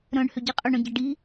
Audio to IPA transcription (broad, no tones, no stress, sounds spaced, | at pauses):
ɾ œ̃ ɳ h ʏ ɟ i qʼ ʏ ɳ œ̃ ɟ ɐ ɖ i